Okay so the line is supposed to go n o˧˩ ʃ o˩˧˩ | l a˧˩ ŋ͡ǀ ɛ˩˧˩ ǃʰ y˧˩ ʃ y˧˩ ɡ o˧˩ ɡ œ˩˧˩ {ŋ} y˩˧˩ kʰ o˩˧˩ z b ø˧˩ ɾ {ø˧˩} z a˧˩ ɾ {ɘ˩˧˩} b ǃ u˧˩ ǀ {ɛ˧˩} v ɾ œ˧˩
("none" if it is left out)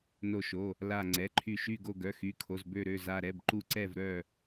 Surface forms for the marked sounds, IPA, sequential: x, ø˧˩, ɛ˩˧˩, ɛ˧˩

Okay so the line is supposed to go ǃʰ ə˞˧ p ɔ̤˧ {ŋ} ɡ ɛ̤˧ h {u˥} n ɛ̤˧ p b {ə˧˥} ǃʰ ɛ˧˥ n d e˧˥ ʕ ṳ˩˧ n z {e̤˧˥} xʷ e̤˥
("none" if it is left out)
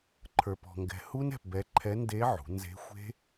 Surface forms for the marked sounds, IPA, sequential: ŋ, u˥, ɛ˧˥, e̤˧˥

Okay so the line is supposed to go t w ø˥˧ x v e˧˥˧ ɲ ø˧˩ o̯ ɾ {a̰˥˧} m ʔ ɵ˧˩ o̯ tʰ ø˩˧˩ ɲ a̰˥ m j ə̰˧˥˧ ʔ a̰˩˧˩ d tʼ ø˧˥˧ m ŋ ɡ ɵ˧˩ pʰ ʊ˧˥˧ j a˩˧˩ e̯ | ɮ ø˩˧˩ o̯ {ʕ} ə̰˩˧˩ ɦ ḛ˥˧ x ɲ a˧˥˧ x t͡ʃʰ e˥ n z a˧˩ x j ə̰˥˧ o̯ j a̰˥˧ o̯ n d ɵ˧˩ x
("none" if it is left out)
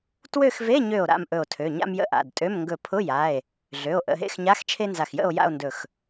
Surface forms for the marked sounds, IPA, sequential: a̰˧˩, ʔ

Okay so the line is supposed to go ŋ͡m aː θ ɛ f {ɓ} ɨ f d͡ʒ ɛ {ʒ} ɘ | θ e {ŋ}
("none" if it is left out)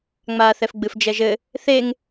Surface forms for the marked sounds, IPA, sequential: ɡ͡b, ʒ, ŋ

